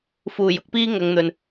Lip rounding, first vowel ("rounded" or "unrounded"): rounded